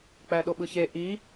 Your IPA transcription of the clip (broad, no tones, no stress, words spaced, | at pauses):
k͡pæɗoɓɯçe ʔi